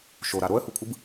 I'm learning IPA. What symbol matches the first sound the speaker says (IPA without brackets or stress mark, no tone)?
ʃ